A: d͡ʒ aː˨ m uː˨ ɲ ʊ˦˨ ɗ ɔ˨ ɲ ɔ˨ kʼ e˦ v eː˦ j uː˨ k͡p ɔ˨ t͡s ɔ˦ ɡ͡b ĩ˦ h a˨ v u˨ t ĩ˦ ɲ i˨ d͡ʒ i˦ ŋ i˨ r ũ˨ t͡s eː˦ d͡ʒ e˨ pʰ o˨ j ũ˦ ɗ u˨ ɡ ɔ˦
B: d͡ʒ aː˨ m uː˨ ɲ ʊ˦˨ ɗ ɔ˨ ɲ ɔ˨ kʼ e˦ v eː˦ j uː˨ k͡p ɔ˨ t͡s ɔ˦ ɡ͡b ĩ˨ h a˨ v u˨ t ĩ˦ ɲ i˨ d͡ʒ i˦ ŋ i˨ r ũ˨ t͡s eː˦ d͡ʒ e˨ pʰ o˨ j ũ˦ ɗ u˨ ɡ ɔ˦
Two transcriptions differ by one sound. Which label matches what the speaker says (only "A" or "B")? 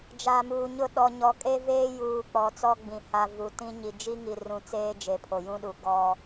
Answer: B